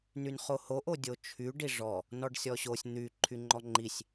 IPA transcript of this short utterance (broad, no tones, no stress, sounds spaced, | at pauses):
n y n χ o h o ʔ o dʲ o t͡ʃʰ y ɖ i ʐ ɔ | n ɔ ɖ sʲ ɔ ɕ o sʲ n̪ y ǃʰ y ŋ͡ǃ ɔ ŋ͡ǃ i sʲ